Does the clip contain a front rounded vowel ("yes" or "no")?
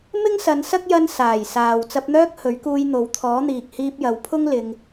yes